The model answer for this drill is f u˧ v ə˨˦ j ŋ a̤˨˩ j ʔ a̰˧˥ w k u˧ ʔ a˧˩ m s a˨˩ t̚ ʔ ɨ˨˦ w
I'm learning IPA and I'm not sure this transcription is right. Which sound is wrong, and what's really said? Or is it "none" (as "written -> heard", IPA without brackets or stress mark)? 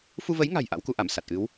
none